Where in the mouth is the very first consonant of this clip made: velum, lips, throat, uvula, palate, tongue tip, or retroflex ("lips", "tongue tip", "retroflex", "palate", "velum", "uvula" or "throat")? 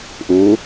throat